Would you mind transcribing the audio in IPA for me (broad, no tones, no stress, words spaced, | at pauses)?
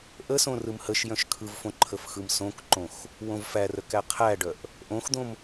ʔəsõ rɯmhəʃ jœ̃ʃkʰɯvfõ ǃʰəfxɯmsõkǃõx | wõvfærəkæ qʰæɖœʔ | ʔõxd̪õm